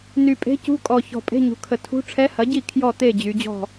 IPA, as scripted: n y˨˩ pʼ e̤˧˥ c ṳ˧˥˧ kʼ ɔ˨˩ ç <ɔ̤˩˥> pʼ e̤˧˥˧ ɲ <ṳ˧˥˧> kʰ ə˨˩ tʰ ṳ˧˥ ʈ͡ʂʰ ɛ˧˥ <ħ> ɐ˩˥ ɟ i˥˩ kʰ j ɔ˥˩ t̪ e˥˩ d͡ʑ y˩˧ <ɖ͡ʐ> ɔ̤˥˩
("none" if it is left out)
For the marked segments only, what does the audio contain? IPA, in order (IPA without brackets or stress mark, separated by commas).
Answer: ɔ̤˨˩, ṳ˩˧, h, d͡ʑ